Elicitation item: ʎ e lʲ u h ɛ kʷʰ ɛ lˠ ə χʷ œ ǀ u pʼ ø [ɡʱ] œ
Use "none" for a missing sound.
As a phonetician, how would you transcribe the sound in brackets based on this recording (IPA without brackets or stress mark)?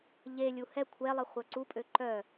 ǃ